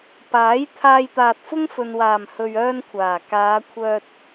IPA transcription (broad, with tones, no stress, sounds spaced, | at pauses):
p aː˨˥ j t̪ʰ aː˧ j t̪ aː˨ t̚ f ʊ˥ ŋ f ɵ˨ n w aː˨˩ m h ɵ˨ ɥ œː˥ n kʷʰ aː˨˩ k aː˨˧ kʷʰ œː˧ t̚